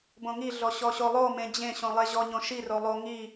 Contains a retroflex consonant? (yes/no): no